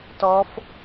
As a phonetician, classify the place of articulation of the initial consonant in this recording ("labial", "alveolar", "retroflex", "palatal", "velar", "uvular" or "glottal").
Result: alveolar